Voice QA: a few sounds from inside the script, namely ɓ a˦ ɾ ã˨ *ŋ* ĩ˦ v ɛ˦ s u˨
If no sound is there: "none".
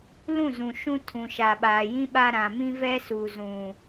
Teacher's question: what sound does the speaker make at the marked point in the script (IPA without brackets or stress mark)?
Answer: m